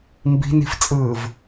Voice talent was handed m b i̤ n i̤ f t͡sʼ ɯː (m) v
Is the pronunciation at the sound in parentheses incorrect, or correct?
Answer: incorrect